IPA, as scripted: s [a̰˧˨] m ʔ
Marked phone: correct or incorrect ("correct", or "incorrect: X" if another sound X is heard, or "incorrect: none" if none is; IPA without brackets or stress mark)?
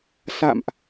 correct